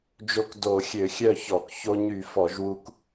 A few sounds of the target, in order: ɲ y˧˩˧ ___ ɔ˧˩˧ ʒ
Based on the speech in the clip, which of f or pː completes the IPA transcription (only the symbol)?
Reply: f